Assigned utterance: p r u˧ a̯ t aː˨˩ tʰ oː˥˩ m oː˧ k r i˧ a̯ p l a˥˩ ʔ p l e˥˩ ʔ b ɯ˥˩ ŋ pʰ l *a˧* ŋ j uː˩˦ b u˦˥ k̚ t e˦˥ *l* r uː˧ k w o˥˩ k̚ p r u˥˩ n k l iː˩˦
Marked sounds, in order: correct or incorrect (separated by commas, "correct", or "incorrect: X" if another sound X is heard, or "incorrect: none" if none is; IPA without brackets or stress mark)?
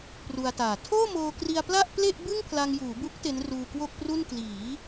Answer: correct, incorrect: n